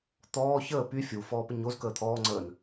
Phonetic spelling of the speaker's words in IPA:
t̪ ɔː ç əː p y fʲ u f ɔː p ə ɲ o z k əː t̪ʰ ɔː ŋ͡ǀ əː n

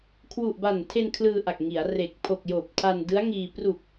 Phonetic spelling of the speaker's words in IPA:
kʰ w u˨˩ ʔ b a˨˩ n tʰ e˧ n kʰ l ɯː˧ ʔ a˨˩ k̚ ŋ i˩˦ a̯ r e˨˩ k̚ pʰ o˨˩ k̚ j oː˨˩ p̚ tʰ a˧ n d ɯ˦˥ a̯ ŋ iː˧ p r u˨˩ k̚

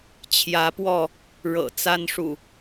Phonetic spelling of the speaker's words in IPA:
t͡ɕʰ j ä˨˦ p w ɔ˥˨ | ɻ ɤ̰˨˩ t͡s a˦ n ʂ ṵ˨˩

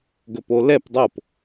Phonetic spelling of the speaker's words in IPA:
ɡ ɵ p o l ɛ p dˤ o p

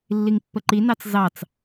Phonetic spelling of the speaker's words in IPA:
lː i ŋ pː ə ǃ i n ɑ t͡s z ɑ t͡s

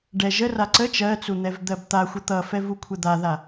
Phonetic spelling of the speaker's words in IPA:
ɖ ɛ ʒ ə r a ǀ ə t͡ʃ ɜ t͡s u n̪ ɛ v d̪ ɜ b t̪ a xʷ ə t̪ ʌ f ɛ v u kʷʰ ɛ d̪ a ð a

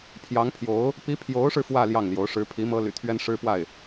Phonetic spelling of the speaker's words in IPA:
pʰ j ɑ˧˥ ŋ pʰ j o˧˥ ʊ̯ | p i˧˥ pʰ j o˧˥ ʊ̯ ʂ ɻ̩˧ f w ä˥˧ l j ɑ˥˩ ŋ l j o˧˥ ʊ̯ ʂ ɻ̩˧˥ pʰ i˧˥ m ɤ˥ l y̰˨˩ t̪ʰ ɥ ɛ˥ n ʂ ɻ̩˥ p w a˥˩ ɪ̯

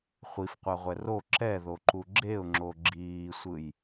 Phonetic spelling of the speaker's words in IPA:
χʷ i f qʷ a ʁʷ ɛ r o ǁ ɛ ð o ǃ u ɡ͡ǁ e ʊ̯ ŋ͡ǁ o ɡ͡ǁ iː sʷ ɯ j

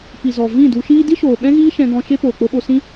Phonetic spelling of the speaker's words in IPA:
p i˨ z ɔ˨ v ĩ˦˨ d u˧ ʃ iː˧ d i˦ ʃ oː˨ ɓ ɛ̃˦ ɣ iː˦ ʃ ɛ̃˧ ɡ ɔ̃˧ ʃ e˦ p oː˨ k͡p o˧ ɓ o˧ s ĩ˦

